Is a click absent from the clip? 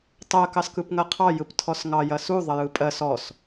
yes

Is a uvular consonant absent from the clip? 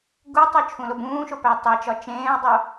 yes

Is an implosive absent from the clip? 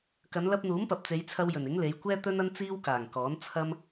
yes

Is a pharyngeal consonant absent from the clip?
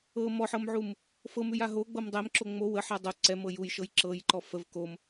no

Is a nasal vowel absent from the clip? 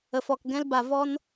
no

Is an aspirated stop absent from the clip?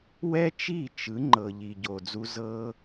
yes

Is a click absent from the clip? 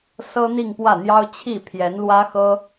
yes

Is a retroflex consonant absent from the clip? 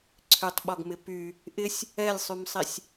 yes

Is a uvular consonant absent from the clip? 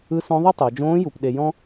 yes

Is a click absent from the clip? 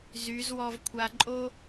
no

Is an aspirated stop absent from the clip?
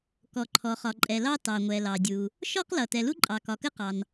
no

